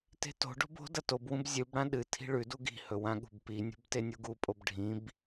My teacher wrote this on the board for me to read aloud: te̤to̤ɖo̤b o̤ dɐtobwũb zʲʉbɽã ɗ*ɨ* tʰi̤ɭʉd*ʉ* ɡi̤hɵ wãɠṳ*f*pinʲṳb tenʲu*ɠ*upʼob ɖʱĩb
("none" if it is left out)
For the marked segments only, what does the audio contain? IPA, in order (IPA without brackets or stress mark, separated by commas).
ɨ, u, b, ɡ